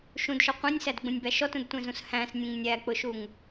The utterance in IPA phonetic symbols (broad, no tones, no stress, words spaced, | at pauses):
ʃũdʃɔ qʷẽnʲsædɡ͡bũnʲbæ ʃɔtũdtʷẽzũs hæ̃snʲẽŋ nʲæk͡pʊʃuŋ